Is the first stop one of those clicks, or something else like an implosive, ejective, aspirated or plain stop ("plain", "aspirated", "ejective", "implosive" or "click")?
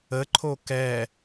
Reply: click